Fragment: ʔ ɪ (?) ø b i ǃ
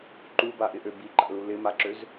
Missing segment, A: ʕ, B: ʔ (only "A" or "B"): B